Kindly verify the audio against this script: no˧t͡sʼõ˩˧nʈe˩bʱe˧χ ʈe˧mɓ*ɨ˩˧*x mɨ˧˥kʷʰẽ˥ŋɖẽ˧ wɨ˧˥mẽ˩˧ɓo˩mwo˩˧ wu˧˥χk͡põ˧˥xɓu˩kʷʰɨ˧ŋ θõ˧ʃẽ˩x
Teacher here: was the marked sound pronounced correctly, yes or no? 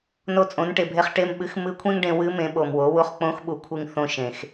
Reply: yes